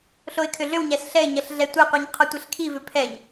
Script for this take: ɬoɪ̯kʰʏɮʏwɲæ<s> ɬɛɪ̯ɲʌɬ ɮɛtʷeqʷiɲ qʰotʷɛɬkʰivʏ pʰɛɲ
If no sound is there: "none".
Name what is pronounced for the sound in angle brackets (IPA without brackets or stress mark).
s